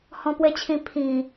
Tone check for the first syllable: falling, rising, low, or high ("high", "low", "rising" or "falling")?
high